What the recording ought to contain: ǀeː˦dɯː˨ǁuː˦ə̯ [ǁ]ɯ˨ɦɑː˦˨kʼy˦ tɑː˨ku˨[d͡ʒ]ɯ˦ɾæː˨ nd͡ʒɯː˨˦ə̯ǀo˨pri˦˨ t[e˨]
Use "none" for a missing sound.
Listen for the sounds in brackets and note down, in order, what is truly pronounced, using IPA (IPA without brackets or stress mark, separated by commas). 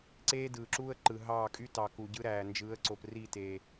ǃ, ɟ, e˨